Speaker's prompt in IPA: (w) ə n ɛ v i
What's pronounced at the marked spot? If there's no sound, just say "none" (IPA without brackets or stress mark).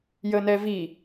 j